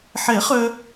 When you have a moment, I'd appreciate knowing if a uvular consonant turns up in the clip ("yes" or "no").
yes